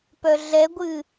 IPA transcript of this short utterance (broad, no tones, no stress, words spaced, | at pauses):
pœɮɛɡʷɨ